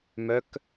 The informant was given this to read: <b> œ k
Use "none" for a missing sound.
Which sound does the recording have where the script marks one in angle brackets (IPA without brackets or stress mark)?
m